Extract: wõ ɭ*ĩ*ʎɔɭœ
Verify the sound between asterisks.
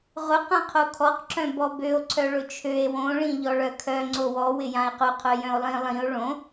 correct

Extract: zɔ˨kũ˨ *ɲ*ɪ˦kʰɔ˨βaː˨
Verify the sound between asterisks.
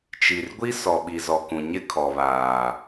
correct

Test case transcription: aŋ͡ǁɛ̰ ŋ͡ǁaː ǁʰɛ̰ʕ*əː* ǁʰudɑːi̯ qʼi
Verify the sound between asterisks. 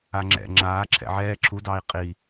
incorrect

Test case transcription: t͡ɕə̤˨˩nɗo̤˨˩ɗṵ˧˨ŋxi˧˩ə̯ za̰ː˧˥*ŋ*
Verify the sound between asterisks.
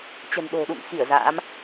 incorrect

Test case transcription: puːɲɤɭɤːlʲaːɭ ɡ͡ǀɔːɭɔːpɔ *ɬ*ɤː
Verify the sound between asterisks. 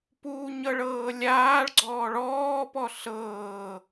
correct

